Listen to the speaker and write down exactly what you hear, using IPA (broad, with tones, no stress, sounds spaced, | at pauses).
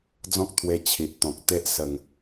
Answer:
d͡z ɔ̃˦ k̚ t̪ʰ w e˧ t͡ɕʰ i˨ ʔ t̪ ɔ̃˨ k̚ t̪ e˦ ʔ s ə˨˩ ŋ